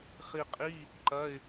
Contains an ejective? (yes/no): yes